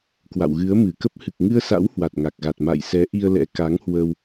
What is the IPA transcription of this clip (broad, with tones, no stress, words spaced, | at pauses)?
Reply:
kwa̰˧˨wɣɨ˨˦ə̯ mɨ˧˩kə˦˥p̚ hɨ˨˩k̚ŋɨ˧ə̯sa̰˧˥w hwa˨˩t̚ŋa˨˩k̚ɣa˨˩t̚ ma̰˧˨jsɛ˨˦ ʔi˧ə̯lɛ̰˧˥ ka˨˦ŋhwə˧w